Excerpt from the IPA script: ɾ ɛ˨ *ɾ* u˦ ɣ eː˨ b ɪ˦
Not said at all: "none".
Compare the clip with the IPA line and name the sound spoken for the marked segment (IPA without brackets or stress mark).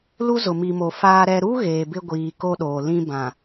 ɾ